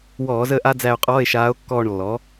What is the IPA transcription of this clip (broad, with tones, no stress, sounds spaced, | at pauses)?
w ɔː˧˩˧ z əː˦˨ ʔ a˥ d͡z æ˦˨ o̯ qʼ ɔː˧˥˧ e̯ ʃ aː˧˥ o̯ kː ɔː˦˨ ɳ lː ɔ˩˥